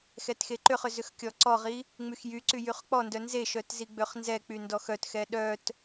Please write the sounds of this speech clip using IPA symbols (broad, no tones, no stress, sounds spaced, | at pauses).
x ɛ t x e ǃ ʏ χ ʏ z ʏ x kʲ ɔ ǀ ɔ ʁ i | ŋ͡m y x j y ǀ y j y χ k͡p ɔ n d œ n z e ʃ œ t z i ɡ͡b ø χ n z ɛ k͡p y n d ɔ x œ t x ɛ ɗ œ t